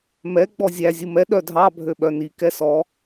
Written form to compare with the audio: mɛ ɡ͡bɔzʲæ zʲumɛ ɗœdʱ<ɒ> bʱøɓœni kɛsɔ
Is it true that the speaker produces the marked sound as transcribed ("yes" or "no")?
no